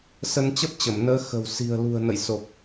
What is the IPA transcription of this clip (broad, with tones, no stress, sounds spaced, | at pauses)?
s ə˧ n t͡ɕ ə˦˥ p̚ t͡ɕ ə˧˩ m n əː˨˦ x ə̤˨˩ w s i̤˨˩ ə̯ l ṳ˨˩ ə̯ n ə̰˧˨ j s o˨˩ k̚